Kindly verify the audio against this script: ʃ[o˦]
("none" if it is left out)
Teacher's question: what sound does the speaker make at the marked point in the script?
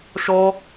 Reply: ɔ˦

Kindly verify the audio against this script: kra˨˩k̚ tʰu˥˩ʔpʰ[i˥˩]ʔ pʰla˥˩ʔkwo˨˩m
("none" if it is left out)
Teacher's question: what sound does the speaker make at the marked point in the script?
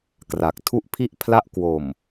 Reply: i˥˩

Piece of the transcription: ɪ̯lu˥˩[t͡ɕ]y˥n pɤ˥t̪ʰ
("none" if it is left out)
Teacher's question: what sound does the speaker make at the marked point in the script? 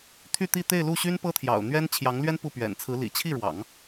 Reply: ɕ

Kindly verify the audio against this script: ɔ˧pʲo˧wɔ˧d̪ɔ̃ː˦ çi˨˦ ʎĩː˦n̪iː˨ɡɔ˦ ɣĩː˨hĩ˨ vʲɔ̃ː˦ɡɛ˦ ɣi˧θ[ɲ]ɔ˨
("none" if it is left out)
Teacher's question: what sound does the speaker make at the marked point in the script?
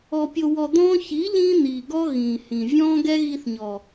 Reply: ɲ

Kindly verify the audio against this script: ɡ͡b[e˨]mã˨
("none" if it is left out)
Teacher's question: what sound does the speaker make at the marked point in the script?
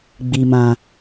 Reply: i˨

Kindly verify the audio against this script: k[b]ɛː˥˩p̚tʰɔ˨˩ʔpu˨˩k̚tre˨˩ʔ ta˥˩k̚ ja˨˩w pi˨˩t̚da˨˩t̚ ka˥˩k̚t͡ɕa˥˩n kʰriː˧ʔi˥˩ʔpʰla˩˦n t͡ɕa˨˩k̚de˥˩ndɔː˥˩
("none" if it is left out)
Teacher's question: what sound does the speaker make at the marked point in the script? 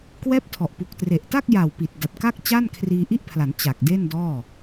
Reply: w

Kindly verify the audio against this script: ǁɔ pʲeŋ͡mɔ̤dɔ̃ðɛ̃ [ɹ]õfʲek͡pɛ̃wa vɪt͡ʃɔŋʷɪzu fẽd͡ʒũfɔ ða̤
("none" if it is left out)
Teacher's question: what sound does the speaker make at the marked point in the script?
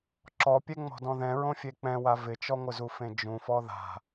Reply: ɹ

